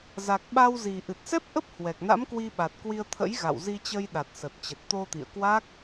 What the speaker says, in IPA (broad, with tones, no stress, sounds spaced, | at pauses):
z a˨˩ k̚ ɓ a˧ w z i˨˩ ʔ ɨ˨˩ t̚ s ɛ˦˥ p̚ ʔ ə˦˥ p̚ h w ɛ˨˩ k̚ n a̰˧˥ m k w i˧ ɓ a˨˩ t̚ k w i˧ ə̯ t̪ʰ ə̰˧˥ j ɣ a̰˧˨ w z i˧ t͡ɕ ə˧ j ɗ a˨˩ t̚ s ə˨˩ t̚ t͡ɕ ə˨˩ t̚ t̪ o˧ t̪ ḭ˧˨ ə̯ k w a˦˥ k̚